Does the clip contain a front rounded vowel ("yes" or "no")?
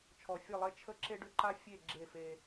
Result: yes